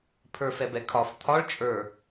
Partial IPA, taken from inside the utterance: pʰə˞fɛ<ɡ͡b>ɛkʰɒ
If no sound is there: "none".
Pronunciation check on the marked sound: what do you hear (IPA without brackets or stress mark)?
b